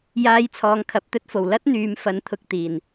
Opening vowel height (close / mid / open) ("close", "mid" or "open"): open